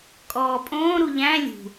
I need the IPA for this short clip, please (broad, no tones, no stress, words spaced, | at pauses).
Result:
kʼɔːpʼõː ɾuʎæ̃ lʲṳ